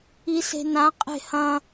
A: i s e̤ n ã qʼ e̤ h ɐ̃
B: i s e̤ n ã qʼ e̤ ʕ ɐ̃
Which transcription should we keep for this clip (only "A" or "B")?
A